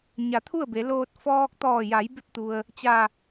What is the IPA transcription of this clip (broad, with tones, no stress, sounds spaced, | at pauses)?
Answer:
ɲ a˩˧ t̪ʰ u˥˨ ə̯ b e˩˧ l oː˧ t̚ f ɔː˧ k̚ t̪ ɔː˧˩ j a˩˧ j b e˧ p̚ t̪ u˩ ə̯ | t͡ɕ a˧˩